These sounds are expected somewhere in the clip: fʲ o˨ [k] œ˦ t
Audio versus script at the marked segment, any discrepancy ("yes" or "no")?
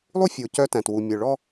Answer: yes